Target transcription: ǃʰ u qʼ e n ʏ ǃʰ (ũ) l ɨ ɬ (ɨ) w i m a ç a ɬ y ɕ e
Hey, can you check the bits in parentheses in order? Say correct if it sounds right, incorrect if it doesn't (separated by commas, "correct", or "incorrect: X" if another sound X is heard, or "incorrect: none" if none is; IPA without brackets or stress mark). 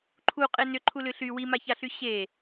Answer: incorrect: u, incorrect: y